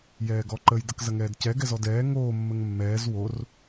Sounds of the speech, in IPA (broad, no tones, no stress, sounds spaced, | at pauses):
j ɛː ɡ ɔ ǃ ə j d ə k z ɐ ŋ ɛː d c ɛ ɡ ɛ z ɔ d ɛː ŋ oː mː ə ŋ mː ɛː z w o r